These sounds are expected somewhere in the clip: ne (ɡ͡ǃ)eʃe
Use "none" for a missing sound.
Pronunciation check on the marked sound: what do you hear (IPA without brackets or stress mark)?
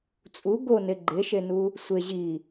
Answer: ɡ͡ǃ